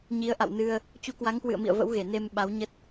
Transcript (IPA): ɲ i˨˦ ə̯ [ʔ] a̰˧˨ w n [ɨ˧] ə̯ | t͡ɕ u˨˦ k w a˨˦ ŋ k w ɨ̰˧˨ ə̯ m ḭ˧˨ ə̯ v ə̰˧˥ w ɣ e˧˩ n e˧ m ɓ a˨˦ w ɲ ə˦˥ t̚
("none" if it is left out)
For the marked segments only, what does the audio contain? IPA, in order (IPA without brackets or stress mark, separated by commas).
ʔ, ɨ˧